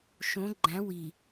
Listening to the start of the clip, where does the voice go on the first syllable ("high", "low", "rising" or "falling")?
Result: rising